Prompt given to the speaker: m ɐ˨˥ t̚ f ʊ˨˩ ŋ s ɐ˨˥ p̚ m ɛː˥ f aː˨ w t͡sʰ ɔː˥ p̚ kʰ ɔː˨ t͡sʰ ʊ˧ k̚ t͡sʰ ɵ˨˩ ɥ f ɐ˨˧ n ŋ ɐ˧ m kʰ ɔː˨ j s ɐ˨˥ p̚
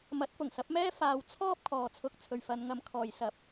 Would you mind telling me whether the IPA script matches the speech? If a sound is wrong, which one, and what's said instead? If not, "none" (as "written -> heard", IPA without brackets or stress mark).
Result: ɵ˨˩ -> ɵ˨